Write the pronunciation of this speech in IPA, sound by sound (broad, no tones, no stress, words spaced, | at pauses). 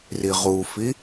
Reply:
riʁufi